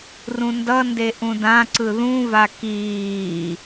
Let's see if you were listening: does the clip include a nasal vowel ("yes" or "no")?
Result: yes